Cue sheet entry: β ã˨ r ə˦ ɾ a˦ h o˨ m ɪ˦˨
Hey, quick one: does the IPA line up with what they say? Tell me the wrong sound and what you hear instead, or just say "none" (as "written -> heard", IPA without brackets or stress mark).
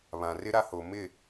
ə˦ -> ɪ˦